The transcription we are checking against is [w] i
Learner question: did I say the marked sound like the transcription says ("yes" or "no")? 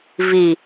no